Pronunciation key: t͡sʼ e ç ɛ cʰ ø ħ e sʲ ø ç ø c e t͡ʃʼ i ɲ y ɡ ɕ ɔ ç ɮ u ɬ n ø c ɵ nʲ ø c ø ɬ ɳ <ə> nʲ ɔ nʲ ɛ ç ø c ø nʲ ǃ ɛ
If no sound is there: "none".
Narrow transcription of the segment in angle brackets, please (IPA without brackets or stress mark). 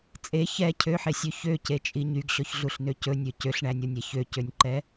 æ